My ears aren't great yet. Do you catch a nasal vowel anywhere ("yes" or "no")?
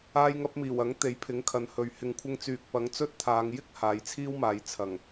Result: no